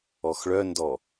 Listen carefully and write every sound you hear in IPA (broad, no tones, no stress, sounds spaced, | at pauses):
ɔ x ɭ œ n d ɔ